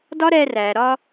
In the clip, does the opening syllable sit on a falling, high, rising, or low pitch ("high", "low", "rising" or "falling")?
high